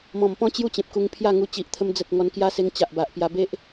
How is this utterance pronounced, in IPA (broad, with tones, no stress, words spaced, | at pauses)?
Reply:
mɔ̃˨˩mpɔ̃˦ t͡ɕju˥˧t͡ɕẽ˨p̚ku˧ŋ pʰja˥˧ŋu˧ t͡ɕi˨ʔt̪ʰə˧m d͡zə˨t̚ ŋɔ˧nkja˦se˧ŋ t͡ɕa˨ʔba˨ʔ pja˧be˦ʔ